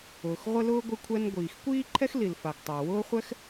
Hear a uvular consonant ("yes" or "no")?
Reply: yes